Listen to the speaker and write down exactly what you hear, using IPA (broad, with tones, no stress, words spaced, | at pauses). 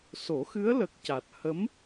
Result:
so˨˩˦xɨ˧˥ə̯lə˨˩k̚ ca˨˩t̚ hə˧˥m